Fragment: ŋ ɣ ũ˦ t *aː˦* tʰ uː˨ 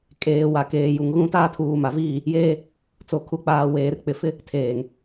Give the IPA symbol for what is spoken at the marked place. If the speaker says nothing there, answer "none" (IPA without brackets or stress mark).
aː˦